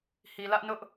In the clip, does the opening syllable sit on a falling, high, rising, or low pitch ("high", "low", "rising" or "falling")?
low